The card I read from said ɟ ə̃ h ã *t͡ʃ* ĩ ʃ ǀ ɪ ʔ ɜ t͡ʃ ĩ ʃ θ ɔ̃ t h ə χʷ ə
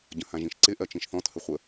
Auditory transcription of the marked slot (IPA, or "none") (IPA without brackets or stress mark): ʒ